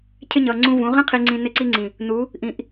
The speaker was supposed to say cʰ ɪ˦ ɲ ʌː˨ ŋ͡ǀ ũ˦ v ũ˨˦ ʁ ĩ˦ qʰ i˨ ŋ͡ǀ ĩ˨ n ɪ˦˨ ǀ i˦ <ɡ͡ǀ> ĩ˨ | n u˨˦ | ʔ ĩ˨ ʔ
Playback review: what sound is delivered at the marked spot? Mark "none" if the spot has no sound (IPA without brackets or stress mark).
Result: ŋ͡ǀ